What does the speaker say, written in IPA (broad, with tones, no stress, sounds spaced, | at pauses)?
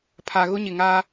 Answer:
pʰ a˨ ɣ ʊ˦ ɲ ɪ˨ ŋ aː˦